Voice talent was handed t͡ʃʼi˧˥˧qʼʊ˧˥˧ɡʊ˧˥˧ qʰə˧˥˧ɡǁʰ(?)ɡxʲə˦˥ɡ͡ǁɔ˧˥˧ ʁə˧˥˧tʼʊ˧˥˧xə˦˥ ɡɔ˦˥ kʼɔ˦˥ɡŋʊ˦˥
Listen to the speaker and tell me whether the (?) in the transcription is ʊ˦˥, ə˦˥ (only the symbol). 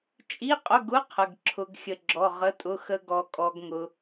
ʊ˦˥